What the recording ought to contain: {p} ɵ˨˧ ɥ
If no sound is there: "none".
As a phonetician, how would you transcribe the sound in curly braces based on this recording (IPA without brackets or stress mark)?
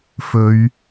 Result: f